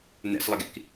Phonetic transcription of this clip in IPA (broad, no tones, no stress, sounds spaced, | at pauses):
n ɛ̰ s lˠ ə ɡ ḭ k